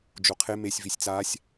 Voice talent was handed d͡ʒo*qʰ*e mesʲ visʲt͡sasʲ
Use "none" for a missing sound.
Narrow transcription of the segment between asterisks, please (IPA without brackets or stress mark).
qʰ